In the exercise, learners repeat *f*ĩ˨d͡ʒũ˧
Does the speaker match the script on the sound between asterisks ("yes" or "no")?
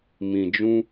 no